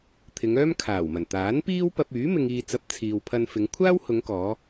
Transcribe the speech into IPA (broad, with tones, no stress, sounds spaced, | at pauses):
t̪ʰ ɪ˨˧ ŋ œː˥ m kʰ aː˨˩ w m ɐ˨˩ n t̪ aː˨˥ n p iː˥ w p ɐ˧ p̚ yː˨˥ m ɪ˨ ŋ iː˨ t͡s ɐ˨˥ p̚ t͡sʰ iː˨ w pʰ ɐ˧ n f ɪ˨˧ ŋ kʷʰ aː˥ w h ʊ˨˧ ŋ k ɔː˨˧